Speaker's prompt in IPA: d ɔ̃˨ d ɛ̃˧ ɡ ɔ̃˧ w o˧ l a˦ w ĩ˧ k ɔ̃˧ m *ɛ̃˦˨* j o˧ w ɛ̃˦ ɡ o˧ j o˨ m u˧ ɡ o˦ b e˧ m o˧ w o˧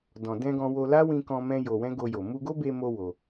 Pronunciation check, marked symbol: incorrect: ɛ̃˧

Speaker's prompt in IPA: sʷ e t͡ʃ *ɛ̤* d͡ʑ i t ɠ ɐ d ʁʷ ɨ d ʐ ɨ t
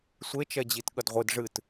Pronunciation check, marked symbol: incorrect: ɛ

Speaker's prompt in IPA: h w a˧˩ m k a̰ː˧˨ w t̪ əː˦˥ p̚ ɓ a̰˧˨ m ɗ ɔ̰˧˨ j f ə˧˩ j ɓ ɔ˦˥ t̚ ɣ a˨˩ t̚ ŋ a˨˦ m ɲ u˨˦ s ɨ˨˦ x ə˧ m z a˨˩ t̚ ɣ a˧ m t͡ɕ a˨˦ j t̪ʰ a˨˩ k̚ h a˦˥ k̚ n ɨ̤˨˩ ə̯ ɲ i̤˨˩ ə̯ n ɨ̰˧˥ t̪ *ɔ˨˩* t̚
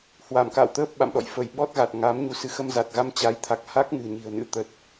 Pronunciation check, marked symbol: incorrect: ə˨˩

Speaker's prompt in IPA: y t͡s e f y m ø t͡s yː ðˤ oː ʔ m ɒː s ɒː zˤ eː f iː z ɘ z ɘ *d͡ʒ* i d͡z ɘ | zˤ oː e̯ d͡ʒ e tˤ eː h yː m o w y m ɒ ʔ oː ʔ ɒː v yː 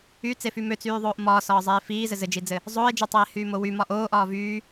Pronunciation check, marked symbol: correct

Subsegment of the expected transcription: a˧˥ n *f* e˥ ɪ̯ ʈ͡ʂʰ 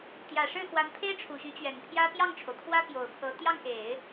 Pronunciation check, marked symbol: incorrect: pʰ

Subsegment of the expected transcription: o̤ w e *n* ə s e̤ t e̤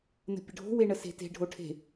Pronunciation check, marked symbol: incorrect: ɳ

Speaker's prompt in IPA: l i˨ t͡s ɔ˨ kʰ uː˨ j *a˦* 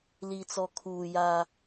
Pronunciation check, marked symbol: correct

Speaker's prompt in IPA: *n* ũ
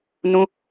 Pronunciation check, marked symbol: correct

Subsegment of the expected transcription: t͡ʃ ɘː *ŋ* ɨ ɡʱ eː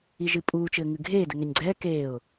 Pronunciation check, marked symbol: correct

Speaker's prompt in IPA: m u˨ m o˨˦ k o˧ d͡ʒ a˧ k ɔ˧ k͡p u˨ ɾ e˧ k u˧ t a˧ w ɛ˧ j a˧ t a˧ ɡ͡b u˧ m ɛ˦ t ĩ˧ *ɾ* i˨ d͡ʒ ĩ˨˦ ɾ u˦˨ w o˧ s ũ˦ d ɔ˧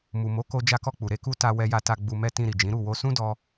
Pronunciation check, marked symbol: correct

